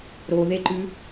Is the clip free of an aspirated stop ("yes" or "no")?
yes